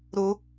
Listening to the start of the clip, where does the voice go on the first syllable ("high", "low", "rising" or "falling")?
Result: high